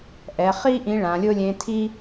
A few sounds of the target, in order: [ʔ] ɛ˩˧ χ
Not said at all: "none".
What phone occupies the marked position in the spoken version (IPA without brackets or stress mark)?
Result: ʔ